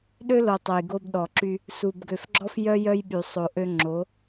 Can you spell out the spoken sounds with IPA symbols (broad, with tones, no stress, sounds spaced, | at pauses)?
ɗ ø˦ l o˨ tˤ œ˨ j ɡ o˧ b ɗ ɔ˨ ǁ y˧ | s u˨ b ɡ ø˨ f ɡ͡ǁ ɔ˦ f j œ˦ j œ˦ j ɓ y˨ sˤ o˨ ʔ ø˧ ŋ͡ǁ o˨˦